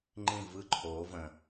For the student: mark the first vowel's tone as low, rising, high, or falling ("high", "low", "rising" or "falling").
falling